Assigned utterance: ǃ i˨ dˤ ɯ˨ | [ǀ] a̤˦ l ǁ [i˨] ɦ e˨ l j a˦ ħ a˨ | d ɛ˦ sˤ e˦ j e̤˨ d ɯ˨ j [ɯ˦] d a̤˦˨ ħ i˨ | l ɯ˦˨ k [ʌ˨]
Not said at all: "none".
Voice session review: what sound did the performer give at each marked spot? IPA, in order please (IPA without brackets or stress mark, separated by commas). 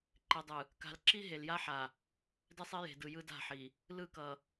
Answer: k, i˦, ɯ˦, ʌ˨